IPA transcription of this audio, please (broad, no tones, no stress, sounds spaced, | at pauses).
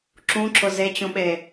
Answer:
ǁ ũ ǁ ʊ z e t͡ɕ ũ ɓ e